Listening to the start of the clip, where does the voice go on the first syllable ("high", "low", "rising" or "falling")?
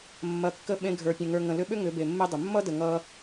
low